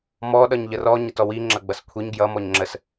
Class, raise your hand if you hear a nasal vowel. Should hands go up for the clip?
no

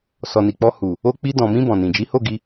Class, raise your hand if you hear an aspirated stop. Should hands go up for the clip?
no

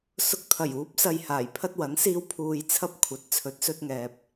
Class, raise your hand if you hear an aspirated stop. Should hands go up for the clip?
yes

